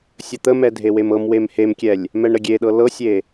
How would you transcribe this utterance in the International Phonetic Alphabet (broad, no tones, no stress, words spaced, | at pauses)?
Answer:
sʲət̪əmɛ dʱewemɤmwem hemkʲɛlʲ | mɛɳɾəɡʲeɗɤ lɤsʲe